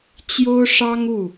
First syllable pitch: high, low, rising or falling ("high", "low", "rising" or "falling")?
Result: high